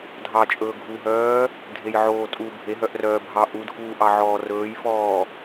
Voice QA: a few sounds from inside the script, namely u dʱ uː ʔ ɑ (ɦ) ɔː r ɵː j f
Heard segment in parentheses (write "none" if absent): ʕ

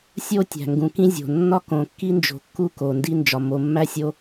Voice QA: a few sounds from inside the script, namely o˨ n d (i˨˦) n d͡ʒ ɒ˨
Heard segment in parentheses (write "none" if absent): i˦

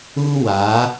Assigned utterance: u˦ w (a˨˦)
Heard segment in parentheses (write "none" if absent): a˨˦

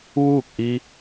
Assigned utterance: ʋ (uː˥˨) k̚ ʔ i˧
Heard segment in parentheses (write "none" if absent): uː˥˨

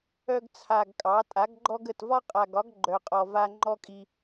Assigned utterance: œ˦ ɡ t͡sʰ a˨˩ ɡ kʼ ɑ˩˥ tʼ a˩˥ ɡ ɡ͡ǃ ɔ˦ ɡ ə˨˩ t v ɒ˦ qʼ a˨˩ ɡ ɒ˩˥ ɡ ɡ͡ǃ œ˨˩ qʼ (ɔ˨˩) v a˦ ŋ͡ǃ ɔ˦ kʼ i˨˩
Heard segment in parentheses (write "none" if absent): ɔ˨˩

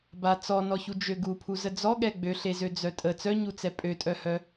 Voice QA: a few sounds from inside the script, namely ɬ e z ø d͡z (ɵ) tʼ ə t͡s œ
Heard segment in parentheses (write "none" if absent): œ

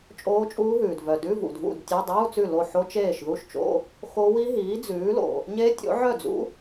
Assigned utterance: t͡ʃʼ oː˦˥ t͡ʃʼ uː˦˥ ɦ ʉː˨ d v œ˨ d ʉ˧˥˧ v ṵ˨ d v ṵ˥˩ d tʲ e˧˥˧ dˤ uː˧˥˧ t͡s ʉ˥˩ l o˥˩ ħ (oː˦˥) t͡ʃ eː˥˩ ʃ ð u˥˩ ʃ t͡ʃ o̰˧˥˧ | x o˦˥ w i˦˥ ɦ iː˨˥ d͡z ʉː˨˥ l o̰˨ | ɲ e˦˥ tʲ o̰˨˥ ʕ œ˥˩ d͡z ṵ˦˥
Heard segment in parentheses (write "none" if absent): o˦˥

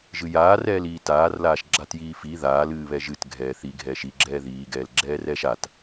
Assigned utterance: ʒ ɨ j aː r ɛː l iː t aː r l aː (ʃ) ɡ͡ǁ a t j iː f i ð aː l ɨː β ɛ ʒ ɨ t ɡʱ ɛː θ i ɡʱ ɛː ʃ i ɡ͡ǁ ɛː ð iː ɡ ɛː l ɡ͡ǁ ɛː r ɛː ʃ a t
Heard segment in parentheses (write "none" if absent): ʃ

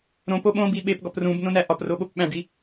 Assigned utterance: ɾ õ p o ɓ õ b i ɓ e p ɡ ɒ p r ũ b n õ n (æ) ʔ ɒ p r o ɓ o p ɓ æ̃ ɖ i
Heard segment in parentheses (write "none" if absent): æ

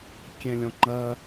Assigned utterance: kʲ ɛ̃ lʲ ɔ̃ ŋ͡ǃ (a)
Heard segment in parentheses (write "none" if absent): ɐ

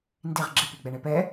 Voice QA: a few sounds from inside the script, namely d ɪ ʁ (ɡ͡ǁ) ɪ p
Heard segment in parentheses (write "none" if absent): ɡ͡ǁ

